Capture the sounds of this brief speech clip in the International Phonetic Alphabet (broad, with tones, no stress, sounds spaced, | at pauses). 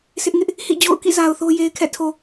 s ɪ˦ ʔ ŋ ɪ˦ ʔ | h ḭ˦˨ d͡ʑ o̰˦˨ ʊ̯ k ḭ˦˨ z a˨ ʊ̯ θ o˦ j e˨ ɪ̯ kʰ ɛ̰˦˨ tʰ o˨